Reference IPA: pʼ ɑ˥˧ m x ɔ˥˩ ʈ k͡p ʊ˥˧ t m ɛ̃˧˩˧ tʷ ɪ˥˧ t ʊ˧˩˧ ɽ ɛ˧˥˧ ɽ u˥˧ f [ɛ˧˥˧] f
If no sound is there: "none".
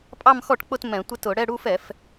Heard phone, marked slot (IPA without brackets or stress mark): ɛ˧˩˧